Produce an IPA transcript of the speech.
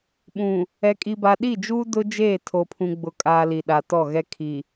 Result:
ɓũ˨ | ɛ˨kʼi˨ba˨ ɗi˦˨d͡ʒuː˦ dʊ˦d͡ʒeː˦˨ tʰo˨pʰũ˨ ɡ͡bʊ˨kʼaː˨ li˨ɗa˨tɔ˦˨ɣɛ˦ kʰi˨

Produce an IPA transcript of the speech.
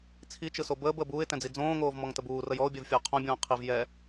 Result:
t͡sʰit͡ʃɯso bəːbəːb uːɪ̯tɛ̃d͡zi d͡zõːŋoːvmɔŋtəb uːrəj ɔʊ̯bʲɛvfʲəʊ̯ qʰõbʲõː qʰiv jɛ

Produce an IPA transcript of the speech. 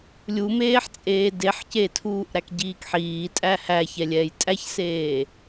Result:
lʲumeːħt͡sʼeː deħcetʰuːʔ ɾækɟiːkħiː tʼæhæçɛ lʲɛːjtʼæçseː

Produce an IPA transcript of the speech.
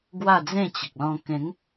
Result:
ɡwa˥˧d͡zẽ˥˧t͡ɕə˨k̚ lɔ̃˧ kẽ˨˦ŋ

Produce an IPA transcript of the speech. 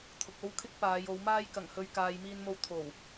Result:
t̪ʰʊ˨k̚o˥wkʰɪ˥k̚ paː˨˧jo˨˧wmaː˥j kɐ˨˩ŋhɵ˨ɥ kaː˨jmiː˧nmo˧w t̪ʰo˨˩w

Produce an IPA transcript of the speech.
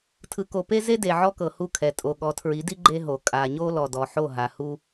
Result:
tʰɯ˨ko˨pe˦ ze˦de˨ ʕɔ˦kɤ˨hu˦˨kʰɛ˨ tʼo˨ɠɔ˨˦tʰɹi˨˦di˦ ɡ͡ǃe˦ɦo˨ kʼa˨ɲo˦lɔ˨ dɔ˨ħo˦˨ɦa˨hu˦

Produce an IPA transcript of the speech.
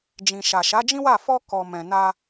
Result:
d͡ʒĩ˨ʃa˨ ʃa˨˦d͡ʒĩ˦wa˦˨ fɔ˧ kɔ˨ mɛ̃˨na˧

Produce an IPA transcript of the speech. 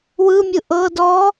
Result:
wɯmʲɯ ʔɤ dɔ

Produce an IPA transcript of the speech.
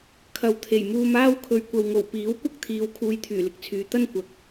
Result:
kʰɐ˨˧wt̪ʰe˨˩jmuː˧maː˥w kʰɵ˨˧ɥkʷɐ˨wŋo˨˩w piː˨˥wkʷɐ˥k̚t̪ʰiː˨˧w kʰuː˧jt̪ʰyː˨˩lɪ˨k̚t͡sʰyː˨˧ t̪ɐ˥nkʷɐ˨˥k̚

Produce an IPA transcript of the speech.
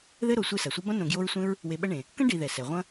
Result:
ðɘ˥ɾo˨ sʷe˦sɐ˩sʷɐ˥ bɐ̃˥ nõ˨ɡjo˦ɹsʷẽ˥ɹ | we˨ɓɐ˦ɳẽ˩ | kɐ̃˥ ɖi˨ ðɛ˩sɛ˩ʁʷɐ̃˦

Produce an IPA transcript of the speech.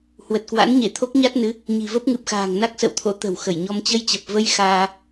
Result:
hwə˨˩t̚kwa̰˧˥nɲe˧˩t̪ʰo˦˥k̚ ɲa˦˥t̚nɨ˨˦ | ɲi̤˨˩və˦˥p̚ŋɨ˨˩p̚xa̤ː˨˩ŋ na˦˥k̚sə̰˧˨wt̪ʰo̰˧˥ t̪ə̤˨˩wxə˧˩jɲɔ˧m t͡ɕə˧jt͡ɕə˨˩p̚və˧j xaː˧

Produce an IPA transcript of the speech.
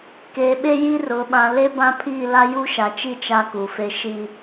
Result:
keː˨ɓe˦ji˦ rʊ˨ ɓã˨le˦bã˦pʰiː˦˨ la˦ju˦ʃa˨t͡ʃi˦ t͡ʃa˦ku˨fe˦ ʃi˦

